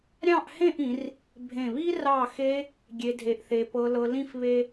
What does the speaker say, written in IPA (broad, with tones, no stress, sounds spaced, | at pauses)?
ɾʲ ɑ̃˥˧ ʔ h ẽ˥˧ ʔ ĩ˩˧ r | bʱ ẽ˧˩ β i˥ r ɑ˧˩ x e˧ | ɡʲ e˧ dʱ e˧ ʔ θ e˧ p ɤ˧ l ɤ˧ l ĩ˥˧ f β e˥